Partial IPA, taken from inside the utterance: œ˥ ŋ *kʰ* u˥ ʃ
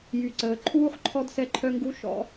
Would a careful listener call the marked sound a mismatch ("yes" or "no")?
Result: yes